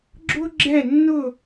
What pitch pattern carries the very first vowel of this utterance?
high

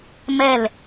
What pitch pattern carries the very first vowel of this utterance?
falling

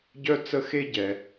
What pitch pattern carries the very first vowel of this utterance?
high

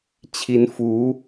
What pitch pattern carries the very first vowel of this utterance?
rising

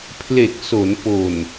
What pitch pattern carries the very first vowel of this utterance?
low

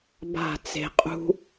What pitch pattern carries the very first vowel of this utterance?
falling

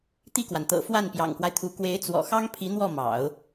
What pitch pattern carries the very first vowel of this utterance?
falling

